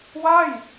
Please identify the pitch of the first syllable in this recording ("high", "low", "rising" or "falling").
falling